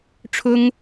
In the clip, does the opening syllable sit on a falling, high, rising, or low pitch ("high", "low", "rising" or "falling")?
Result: high